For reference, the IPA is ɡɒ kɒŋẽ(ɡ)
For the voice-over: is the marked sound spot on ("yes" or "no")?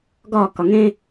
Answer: no